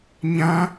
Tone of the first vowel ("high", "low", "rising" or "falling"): high